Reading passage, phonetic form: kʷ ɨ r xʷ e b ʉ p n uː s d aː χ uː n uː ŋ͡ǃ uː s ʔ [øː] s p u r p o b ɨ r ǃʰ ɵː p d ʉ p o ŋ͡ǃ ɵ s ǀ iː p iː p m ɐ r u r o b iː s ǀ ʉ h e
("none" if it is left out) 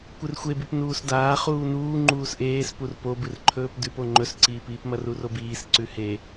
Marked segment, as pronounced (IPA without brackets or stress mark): eː